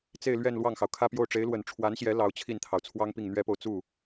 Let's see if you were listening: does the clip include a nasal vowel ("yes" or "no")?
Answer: no